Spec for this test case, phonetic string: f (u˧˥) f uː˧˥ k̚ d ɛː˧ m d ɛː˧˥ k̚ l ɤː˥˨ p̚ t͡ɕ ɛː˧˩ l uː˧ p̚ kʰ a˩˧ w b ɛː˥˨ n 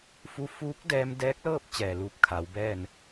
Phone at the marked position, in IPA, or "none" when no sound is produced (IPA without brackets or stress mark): u˧